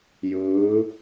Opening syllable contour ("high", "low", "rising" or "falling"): rising